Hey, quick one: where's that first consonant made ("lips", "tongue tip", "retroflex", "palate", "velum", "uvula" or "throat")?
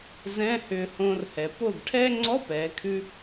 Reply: tongue tip